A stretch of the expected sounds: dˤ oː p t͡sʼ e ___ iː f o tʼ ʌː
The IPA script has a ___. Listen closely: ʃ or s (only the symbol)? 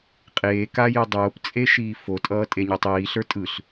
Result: ʃ